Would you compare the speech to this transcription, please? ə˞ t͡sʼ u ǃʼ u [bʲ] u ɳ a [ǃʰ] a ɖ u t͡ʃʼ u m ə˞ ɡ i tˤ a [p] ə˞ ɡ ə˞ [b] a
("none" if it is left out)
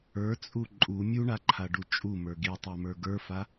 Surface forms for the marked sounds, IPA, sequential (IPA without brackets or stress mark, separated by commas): mʲ, ǃʰ, m, f